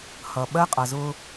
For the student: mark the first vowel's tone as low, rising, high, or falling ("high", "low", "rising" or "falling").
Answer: low